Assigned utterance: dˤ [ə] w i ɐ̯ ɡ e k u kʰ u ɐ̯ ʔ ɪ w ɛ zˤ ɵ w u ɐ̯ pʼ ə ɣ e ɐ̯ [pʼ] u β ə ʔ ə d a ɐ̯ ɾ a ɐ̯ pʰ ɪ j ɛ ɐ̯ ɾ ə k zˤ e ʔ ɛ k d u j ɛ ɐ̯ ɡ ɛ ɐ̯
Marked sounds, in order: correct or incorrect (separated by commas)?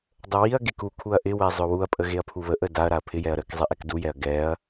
correct, incorrect